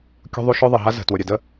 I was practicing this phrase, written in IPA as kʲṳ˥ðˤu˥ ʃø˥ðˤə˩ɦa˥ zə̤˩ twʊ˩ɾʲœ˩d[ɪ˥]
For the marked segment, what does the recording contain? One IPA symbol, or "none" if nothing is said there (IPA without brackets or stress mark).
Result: ə˥